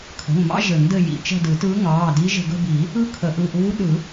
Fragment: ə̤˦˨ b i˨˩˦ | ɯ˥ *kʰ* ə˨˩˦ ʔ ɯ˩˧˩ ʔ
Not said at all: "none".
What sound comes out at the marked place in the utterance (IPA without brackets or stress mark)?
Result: kʰ